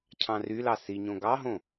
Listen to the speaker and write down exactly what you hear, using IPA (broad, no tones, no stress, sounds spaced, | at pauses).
cʰ ɑ̃ r y l ɑ s i ɲ õ ɡ ɑ ɦ õ